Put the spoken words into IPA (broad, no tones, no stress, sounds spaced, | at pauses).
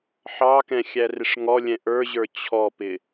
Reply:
ħ ɑ k ɛ̃ xʲ æ r ɪ ʂ ŋ ɔ lʲ ɛ̃ ʔ ə˞ ʑ ə˞ t͡ɕʰ ɔ p ɪ